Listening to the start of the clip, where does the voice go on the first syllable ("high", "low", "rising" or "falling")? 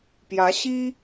rising